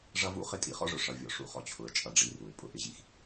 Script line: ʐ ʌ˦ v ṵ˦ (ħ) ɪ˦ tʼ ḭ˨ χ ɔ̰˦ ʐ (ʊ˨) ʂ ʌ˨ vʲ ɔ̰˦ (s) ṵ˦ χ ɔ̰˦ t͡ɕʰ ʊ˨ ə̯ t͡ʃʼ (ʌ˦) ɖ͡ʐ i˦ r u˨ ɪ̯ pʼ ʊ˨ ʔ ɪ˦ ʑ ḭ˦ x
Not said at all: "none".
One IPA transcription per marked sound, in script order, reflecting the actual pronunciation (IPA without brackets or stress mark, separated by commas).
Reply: χ, ʊ˨, ʂ, ʌ˦